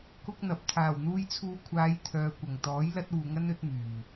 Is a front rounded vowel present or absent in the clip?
present